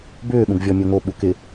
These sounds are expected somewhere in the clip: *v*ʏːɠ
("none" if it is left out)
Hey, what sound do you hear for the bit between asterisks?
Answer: b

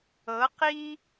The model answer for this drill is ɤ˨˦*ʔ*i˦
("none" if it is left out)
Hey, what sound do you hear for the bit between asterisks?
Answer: q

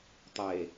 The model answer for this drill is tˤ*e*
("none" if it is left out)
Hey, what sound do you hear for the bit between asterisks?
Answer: e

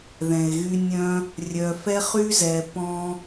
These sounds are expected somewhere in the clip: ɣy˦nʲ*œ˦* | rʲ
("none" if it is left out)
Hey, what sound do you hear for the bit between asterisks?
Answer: œ̃˦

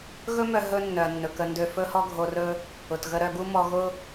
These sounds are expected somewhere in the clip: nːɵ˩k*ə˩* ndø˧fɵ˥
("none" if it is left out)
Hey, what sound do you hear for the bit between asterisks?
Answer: ə˧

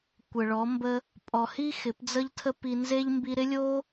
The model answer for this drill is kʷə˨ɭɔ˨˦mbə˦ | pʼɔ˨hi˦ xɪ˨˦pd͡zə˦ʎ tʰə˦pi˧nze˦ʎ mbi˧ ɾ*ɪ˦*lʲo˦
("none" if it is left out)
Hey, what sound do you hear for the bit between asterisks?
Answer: ɪ˦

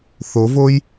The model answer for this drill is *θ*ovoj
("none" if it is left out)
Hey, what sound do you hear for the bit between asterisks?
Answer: θ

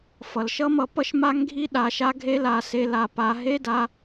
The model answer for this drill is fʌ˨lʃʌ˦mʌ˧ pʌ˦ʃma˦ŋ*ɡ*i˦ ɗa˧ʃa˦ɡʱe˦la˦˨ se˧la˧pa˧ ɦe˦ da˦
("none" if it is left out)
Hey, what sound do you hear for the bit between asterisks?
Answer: ɡʱ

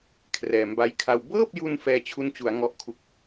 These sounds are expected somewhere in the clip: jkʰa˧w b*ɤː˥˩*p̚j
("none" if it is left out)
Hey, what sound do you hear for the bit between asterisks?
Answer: ɤː˥˩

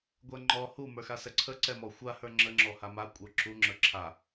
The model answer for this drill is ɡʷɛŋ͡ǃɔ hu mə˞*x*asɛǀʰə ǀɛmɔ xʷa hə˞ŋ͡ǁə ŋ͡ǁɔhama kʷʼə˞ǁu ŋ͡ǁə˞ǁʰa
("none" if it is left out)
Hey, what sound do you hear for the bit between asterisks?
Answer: x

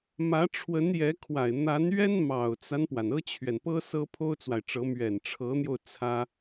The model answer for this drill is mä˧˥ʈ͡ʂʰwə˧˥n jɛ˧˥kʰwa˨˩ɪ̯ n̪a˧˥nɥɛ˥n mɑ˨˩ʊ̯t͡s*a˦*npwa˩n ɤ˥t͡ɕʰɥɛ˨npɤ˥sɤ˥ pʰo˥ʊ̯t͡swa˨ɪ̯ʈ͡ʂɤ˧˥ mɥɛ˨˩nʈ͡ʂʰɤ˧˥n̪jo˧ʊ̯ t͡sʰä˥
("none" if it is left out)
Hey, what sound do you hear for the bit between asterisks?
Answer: a˦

